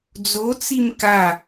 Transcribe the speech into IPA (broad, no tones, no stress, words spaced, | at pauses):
d͡zot͡sim ka